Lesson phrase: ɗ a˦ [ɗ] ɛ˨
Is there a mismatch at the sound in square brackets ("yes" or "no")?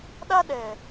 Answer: no